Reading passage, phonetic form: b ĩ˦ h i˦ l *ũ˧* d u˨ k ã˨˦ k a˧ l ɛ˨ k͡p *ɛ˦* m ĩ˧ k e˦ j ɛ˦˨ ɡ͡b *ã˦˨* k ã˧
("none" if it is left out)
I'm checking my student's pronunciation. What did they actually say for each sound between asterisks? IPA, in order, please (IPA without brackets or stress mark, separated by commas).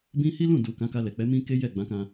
ũ˦˨, ɛ˨˦, ã˨˦